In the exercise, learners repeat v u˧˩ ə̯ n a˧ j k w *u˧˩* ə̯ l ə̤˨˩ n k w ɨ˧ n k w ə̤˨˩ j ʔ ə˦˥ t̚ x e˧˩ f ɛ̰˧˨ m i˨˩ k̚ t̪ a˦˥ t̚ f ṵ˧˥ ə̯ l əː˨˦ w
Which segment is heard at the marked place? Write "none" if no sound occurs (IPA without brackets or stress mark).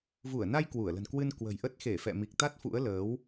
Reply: u˧˩